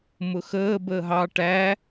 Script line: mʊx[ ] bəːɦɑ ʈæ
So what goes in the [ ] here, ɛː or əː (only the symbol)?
əː